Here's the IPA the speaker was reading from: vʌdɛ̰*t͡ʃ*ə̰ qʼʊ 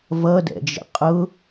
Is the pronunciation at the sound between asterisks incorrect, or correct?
incorrect: d͡ʒ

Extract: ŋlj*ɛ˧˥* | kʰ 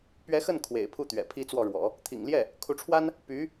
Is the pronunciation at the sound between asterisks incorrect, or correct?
incorrect: ɛ˥˩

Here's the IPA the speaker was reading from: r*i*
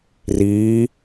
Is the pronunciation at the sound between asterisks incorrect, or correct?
incorrect: iː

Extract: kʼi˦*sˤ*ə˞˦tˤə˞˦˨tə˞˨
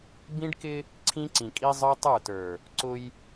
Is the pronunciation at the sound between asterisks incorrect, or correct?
incorrect: zˤ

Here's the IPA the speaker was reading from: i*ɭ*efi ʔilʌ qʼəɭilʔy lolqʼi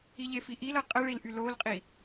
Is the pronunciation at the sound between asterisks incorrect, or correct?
incorrect: ʎ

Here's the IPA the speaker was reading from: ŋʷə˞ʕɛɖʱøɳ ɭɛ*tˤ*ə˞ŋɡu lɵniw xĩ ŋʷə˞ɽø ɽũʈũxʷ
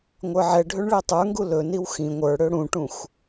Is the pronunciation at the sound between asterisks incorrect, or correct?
correct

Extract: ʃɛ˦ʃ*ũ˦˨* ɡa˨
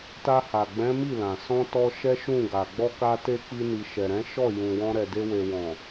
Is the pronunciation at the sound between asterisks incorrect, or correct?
correct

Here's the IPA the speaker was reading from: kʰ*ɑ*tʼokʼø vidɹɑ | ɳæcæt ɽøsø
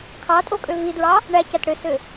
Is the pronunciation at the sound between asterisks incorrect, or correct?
correct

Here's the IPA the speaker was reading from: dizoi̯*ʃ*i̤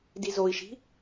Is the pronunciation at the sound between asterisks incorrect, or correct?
correct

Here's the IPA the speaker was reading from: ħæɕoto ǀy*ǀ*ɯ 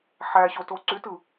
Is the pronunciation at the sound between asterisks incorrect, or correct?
incorrect: t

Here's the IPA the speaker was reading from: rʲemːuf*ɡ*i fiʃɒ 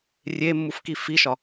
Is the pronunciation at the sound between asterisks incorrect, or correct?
incorrect: k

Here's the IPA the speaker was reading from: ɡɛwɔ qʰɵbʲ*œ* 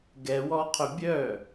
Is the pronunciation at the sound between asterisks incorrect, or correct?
correct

